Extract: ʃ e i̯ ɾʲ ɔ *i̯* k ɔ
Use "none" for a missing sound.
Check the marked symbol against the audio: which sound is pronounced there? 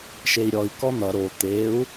i̯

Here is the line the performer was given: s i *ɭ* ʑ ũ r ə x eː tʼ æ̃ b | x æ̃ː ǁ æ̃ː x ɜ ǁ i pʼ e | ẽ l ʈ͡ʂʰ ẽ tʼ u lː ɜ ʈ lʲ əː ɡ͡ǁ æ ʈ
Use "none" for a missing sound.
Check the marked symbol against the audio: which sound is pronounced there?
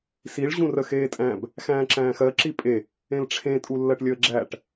ɭ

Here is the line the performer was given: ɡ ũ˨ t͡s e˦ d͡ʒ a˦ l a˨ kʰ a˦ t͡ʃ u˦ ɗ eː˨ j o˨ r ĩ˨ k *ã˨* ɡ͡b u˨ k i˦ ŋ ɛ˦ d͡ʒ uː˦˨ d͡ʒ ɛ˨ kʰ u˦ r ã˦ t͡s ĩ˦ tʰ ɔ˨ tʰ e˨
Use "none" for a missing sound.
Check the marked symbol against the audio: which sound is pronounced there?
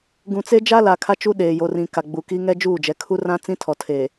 a˨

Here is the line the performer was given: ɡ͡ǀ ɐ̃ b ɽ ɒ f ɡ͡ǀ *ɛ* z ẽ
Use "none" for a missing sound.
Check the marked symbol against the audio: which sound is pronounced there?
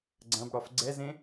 ɛ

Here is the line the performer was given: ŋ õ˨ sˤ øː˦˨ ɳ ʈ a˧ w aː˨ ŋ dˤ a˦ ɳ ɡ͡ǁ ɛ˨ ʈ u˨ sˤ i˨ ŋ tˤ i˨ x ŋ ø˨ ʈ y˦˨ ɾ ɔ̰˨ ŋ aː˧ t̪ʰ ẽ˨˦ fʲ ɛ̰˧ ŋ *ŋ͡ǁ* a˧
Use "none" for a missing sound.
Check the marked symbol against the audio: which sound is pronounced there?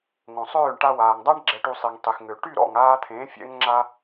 ŋ͡ǁ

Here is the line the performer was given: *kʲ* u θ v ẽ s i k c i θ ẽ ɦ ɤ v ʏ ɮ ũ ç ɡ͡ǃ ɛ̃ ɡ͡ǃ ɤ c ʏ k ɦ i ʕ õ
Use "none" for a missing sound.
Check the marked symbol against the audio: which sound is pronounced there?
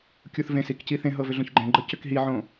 kʲ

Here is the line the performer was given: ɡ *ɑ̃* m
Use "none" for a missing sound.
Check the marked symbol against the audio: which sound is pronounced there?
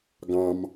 ɑ̃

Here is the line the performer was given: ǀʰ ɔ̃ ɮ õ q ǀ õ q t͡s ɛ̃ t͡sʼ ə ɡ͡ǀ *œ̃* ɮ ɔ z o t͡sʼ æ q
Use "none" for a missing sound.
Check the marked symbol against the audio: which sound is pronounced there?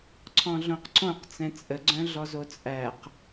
œ̃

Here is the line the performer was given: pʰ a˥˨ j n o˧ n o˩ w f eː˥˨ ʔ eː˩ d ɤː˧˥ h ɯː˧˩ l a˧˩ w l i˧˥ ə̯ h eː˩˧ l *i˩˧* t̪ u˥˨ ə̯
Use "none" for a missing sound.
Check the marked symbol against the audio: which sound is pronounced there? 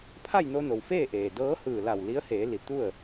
i˩˧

